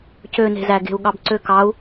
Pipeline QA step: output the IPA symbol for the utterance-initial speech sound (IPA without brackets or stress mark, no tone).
c